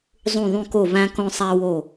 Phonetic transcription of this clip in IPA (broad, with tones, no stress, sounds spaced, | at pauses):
zˤ ũ˧˩ ðˤ ũ˧ k o˧˩ v æ̃˧ k õ˧ sˤ æ˧ w o˧˩